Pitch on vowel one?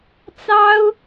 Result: high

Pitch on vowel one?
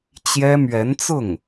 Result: high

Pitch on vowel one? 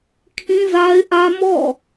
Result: high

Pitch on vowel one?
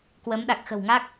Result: rising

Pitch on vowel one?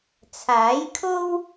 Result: rising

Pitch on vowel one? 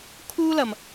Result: high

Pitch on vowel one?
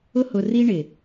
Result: high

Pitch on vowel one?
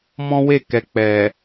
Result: high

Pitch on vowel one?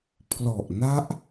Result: low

